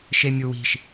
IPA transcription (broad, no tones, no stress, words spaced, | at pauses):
ʃemʲuwi̤ʃ